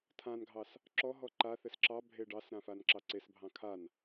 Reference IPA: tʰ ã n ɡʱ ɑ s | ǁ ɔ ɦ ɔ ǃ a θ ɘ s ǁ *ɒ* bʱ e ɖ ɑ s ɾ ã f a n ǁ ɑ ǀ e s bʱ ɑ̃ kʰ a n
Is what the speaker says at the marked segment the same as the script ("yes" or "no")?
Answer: no